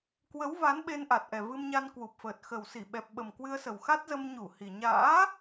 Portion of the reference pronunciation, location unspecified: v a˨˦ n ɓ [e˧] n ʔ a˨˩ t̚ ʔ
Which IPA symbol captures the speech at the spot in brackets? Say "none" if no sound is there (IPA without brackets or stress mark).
e˧